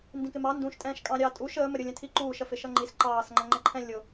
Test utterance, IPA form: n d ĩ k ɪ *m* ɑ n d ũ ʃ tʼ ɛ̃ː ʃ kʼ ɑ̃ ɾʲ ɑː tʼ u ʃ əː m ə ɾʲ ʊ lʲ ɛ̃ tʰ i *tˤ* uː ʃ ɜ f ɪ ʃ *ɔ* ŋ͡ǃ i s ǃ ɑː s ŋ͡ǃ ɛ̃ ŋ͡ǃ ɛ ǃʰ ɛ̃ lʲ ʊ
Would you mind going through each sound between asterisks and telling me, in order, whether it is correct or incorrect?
correct, incorrect, incorrect

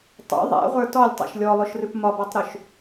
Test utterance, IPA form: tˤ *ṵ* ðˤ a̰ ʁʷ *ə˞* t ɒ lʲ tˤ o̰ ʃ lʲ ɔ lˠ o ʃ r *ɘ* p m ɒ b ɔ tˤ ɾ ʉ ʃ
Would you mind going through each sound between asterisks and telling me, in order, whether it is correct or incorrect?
incorrect, correct, incorrect

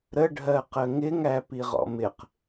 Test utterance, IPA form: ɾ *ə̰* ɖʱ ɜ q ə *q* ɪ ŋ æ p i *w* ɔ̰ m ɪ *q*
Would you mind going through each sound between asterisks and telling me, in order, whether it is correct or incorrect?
incorrect, incorrect, incorrect, correct

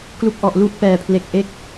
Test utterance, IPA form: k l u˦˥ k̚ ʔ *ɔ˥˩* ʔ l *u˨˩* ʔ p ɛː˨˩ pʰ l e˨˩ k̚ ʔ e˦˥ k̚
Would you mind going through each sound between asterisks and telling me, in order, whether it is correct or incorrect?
incorrect, incorrect

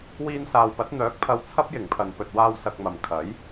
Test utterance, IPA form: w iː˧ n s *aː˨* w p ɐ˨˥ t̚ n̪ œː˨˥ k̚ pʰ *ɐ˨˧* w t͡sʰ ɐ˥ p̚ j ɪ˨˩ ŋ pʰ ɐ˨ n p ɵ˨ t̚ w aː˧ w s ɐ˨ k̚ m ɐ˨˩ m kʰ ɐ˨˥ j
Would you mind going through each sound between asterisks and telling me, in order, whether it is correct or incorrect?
correct, correct

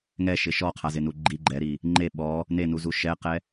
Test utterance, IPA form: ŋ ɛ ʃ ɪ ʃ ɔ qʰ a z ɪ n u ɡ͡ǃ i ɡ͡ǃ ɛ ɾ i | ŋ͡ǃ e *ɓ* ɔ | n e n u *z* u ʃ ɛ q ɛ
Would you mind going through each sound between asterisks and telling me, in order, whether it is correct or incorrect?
correct, correct

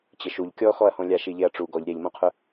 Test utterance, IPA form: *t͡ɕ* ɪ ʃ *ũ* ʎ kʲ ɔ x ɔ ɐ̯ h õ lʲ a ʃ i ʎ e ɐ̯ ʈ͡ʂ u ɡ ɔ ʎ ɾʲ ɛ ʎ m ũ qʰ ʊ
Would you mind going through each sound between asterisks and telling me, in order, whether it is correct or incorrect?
correct, incorrect

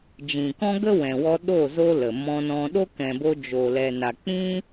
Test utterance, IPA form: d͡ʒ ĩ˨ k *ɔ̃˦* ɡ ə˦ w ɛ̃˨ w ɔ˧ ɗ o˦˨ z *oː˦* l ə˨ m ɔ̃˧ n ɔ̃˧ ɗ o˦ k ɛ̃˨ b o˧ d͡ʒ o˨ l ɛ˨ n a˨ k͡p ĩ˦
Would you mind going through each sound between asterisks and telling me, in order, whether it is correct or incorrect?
correct, incorrect

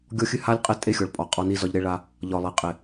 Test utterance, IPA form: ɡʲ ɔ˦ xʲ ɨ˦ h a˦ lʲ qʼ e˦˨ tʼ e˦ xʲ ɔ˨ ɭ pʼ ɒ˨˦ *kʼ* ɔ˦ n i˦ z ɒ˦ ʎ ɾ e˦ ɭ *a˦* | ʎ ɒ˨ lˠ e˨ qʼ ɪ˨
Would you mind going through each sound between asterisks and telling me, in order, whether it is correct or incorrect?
incorrect, correct

